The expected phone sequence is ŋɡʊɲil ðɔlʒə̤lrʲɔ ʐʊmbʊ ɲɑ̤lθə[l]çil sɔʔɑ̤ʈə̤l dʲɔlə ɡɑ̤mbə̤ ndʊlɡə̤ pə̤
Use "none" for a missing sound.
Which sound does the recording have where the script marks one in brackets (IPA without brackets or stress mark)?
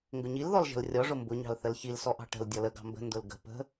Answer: l